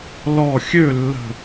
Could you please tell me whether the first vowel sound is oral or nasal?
oral